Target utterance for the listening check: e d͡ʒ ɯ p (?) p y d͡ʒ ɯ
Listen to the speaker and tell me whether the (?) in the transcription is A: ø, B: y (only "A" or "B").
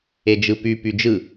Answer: B